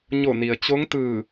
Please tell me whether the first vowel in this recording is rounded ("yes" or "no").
yes